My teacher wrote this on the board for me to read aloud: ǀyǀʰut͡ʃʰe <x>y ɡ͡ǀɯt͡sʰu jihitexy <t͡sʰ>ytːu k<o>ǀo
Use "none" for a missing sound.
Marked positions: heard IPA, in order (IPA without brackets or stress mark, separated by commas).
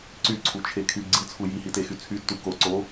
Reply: kʰ, t͡sʰ, o